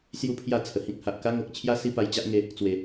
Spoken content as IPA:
s j u˥˧ pʰ j a˥˧ t͡sʰ ə˨˩ h ĩ˦ k̚ h a˨ ʔ k a˦ ŋ o˨ k̚ t͡ɕʰ j a˦ s i˦ p a˧ j t͡ɕ a˦ ʔ ŋ e˧ | t͡s w e˨˩

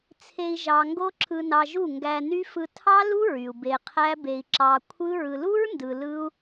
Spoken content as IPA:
t͡sʰ e˧ i̯ ʒ ɑ˨ ŋ ɡ o˦ ǁʰ ɯ˧ n ɑ˧ ʒ u˦˨ ŋ ɡ æ˧ n y˦ f ɯ˧ tʰ ɑ˦ l u˦ ɹ y˨ u̯ b e˧ qʰ æ˦ b e˧ i̯ ǁ ɑ˧ kʷʰ ɯ˦ ɹ ɯ˨ l u˦ ɹ n d ɯ˨ l ɯ˦ u̯

